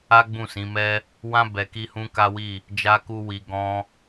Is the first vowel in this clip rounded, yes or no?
no